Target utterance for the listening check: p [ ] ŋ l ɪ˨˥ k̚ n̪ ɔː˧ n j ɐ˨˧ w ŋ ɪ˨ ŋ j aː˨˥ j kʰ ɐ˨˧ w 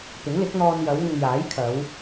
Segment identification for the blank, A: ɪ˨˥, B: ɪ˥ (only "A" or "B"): A